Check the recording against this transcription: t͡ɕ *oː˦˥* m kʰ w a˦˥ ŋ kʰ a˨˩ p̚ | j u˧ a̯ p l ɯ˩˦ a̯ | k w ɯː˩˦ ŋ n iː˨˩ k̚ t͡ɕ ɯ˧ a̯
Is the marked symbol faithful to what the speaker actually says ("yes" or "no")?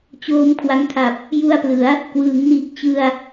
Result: yes